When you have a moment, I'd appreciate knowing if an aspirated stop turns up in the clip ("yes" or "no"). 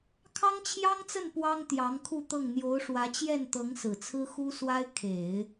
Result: yes